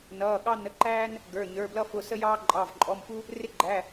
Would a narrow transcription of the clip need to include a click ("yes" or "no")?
yes